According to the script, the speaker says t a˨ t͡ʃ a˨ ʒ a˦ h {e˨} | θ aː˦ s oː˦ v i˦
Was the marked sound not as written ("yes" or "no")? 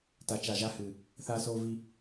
yes